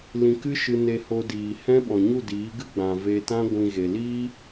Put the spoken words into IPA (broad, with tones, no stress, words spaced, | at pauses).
lĩ˧kɨ˦ʃɨ˧ne˧ ho˧diː˨hɛ̃˦ ɓɔ̃˨ɲu˦˨diː˨˦ɡɨ˦ ɡ͡bã˨ ve˧tã˦ ɡʷĩ˧ɣe˨ liː˦